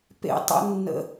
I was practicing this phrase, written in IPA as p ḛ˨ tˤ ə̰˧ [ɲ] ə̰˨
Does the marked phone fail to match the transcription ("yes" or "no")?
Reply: yes